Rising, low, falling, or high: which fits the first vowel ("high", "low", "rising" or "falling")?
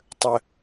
low